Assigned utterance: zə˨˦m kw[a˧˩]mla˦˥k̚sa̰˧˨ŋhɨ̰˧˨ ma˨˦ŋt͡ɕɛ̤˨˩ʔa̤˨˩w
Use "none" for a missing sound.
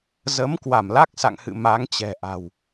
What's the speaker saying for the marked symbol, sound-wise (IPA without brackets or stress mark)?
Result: a˧˩